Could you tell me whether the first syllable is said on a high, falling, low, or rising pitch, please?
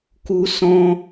high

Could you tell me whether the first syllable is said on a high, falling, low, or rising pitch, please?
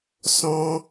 high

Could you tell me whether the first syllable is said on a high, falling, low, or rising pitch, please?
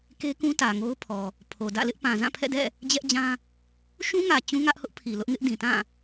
high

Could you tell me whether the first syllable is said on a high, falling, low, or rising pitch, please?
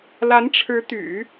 rising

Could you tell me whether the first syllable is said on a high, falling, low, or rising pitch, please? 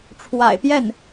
low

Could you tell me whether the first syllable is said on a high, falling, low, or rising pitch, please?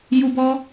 high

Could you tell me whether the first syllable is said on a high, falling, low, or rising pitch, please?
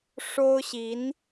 high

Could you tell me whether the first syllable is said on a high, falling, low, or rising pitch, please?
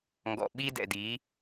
low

